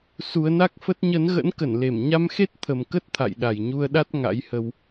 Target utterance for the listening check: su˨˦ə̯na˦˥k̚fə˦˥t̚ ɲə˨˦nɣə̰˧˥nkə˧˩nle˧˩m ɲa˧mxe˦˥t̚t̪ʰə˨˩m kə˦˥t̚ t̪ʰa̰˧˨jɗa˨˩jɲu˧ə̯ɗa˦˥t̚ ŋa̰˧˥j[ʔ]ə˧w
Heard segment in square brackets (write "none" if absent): h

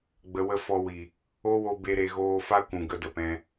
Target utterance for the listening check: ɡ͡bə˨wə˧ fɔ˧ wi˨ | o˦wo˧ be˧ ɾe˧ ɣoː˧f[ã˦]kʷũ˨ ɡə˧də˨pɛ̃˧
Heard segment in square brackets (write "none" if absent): a˦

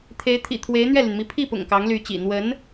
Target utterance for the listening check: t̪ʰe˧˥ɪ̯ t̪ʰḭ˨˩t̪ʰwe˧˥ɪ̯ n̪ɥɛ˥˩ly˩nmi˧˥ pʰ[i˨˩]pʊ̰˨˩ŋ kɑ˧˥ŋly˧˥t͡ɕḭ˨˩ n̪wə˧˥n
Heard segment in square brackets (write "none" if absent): i˥˩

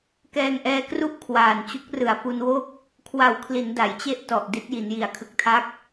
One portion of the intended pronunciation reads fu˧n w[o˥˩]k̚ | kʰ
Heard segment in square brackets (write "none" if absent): o˥˩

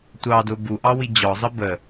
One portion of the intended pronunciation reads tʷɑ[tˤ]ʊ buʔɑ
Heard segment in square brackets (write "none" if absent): d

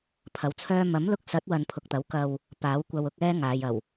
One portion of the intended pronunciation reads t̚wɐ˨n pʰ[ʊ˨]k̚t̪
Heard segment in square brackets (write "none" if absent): ʊ˨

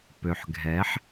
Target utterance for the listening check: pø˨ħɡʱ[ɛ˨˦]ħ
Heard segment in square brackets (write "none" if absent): ɛ˨˦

